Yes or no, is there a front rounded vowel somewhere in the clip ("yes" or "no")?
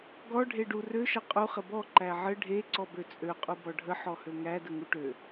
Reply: yes